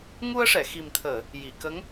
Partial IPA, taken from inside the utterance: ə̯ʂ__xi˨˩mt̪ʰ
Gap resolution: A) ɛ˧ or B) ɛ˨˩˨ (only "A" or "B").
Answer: B